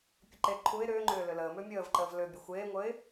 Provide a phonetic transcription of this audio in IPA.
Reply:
pʲəǃe ǃʰuɪ̯ ɾʏːŋ͡ǃʏː lʏləː mʏːmʲəːv ǃəːvlʏ bʲəxʷeːŋʷəɪ̯

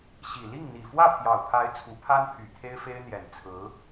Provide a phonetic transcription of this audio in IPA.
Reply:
ɕi˨˩ li˥˩ŋ n̪i˨˩fwä˥˩pʰjɑ˨˩ʊ̯pʰa˧˥ɪ̯ t͡sʰu˧˥pʰa˥npʰy˨˩ t̪ʰe˥ɪ̯fe˥ɪ̯n̪jɛ˨˩n t͡sʰɹ̩˧˥

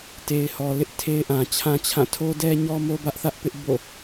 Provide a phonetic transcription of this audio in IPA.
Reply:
te˨ɪ̯hɔ˨lɪ˦ʔ tʰe˦ɪ̯ʔã˨t͡ɕʰã˦t͡ɕʰã˦˨ tʰo˦dɛ˦ɲɔ˦mo˦ bä˦ʔθä˦ʔ pɪ˦ʔbo̰˦˨

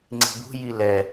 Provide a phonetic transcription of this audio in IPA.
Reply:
ŋ͡ǀi̤bṳ jilɛ

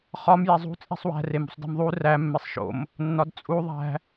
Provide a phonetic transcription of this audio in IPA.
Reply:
χɒm jezˤṳ t͡sʼi̤sˤwæ̤ remṳsˤdi̤mðˤu ræ mːesˤʃo̰m | nːɒdt͡sʼu ðˤæ̤

